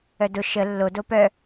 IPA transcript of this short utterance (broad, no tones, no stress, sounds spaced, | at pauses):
œ d ʊ ʃ ə lː o d o p œ